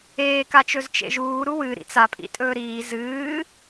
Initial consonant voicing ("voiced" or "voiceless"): voiceless